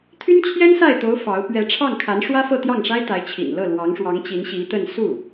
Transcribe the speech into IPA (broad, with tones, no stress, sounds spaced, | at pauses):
t̪ʰ y˥ n t͡ɕʰ j ɛ˥ n s a˥˩ ɪ̯ t̪ o˧˥ ʊ̯ f ɑ˧˥ ʊ̯ p ɥ ɛ˧˥ ʈ͡ʂʰ ɑ˥˩ ŋ kʰ a˧˥ n ʂ w ä˥ f ɤ˥˧ t̪ j ɑ˥˩ ŋ ʂ a˥ ɪ̯ t̪ a˧˥ ɪ̯ t͡ɕʰ ḭ˨˩ n l ɤ˥˩ l w ɑ˧˥ ŋ ʂ w ɑ˧˥ ŋ t͡ɕ i˧˥ n ɕ i˧˥ t̪ ə˥˧ n s u˥˩